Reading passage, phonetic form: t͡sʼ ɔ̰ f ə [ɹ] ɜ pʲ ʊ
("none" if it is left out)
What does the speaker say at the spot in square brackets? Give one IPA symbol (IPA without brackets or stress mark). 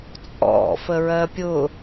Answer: ɹ